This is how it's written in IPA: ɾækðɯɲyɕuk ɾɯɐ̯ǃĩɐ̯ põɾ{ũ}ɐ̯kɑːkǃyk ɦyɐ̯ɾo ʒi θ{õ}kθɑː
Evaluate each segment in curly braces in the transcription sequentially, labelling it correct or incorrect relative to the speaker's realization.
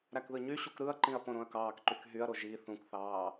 incorrect: õ, incorrect: ũ

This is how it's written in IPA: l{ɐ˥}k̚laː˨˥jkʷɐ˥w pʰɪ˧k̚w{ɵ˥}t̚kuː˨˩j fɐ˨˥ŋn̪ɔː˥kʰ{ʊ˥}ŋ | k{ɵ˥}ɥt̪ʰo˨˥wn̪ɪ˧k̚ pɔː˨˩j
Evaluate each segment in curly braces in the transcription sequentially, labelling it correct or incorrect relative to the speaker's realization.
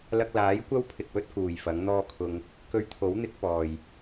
incorrect: ɐ˧, correct, incorrect: ʊ˧, incorrect: ɵ˧

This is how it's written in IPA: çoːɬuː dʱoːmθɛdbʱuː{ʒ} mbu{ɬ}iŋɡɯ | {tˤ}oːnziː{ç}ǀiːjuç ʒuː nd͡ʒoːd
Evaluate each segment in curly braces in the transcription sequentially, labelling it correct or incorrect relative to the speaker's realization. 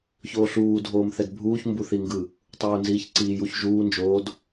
incorrect: ç, incorrect: θ, correct, correct

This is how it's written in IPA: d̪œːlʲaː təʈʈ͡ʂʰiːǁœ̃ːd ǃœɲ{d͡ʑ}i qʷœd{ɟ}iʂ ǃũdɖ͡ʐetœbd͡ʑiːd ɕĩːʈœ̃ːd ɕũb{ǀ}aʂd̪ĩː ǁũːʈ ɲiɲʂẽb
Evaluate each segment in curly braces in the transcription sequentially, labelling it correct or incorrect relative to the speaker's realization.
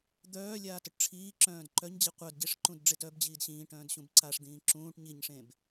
correct, correct, correct

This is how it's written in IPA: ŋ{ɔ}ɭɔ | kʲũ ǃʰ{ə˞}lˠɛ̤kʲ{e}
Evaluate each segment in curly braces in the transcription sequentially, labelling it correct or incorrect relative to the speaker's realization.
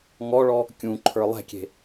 correct, correct, incorrect: e̤

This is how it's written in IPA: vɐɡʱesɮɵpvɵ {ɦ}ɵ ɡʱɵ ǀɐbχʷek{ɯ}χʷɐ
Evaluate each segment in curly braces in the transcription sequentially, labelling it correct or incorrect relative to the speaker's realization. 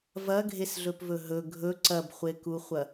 correct, incorrect: u

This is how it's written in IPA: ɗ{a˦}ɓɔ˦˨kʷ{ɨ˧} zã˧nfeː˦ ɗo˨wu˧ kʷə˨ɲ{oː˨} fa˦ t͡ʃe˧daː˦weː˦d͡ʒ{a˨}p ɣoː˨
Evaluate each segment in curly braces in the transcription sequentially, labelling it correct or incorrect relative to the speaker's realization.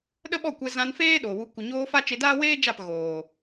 incorrect: ə˦, incorrect: ɛ˧, incorrect: oː˧, incorrect: a˦˨

